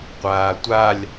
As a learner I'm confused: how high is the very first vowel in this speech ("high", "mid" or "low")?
low